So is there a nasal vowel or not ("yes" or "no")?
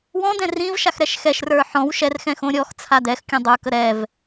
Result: yes